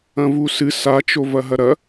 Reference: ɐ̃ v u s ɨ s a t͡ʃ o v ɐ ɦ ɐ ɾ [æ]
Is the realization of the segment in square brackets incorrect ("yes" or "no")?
yes